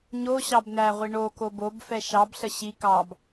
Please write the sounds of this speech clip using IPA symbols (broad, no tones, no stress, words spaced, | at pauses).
ɲo ɕɑbn̪æʁʷi ɳoko bobfɛ ʃɑbɬə ɕi kɑb